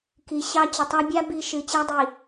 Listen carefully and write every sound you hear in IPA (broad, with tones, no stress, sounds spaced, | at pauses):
k i˨ ɕ ɑ˦ t͡ɕ ə˨ tˤ a˦ bʲ a˦ b i˦˨ ʃ ɨ˨ t͡ɕ æ˦ dˤ i˨